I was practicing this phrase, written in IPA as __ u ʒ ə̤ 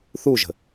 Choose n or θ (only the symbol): θ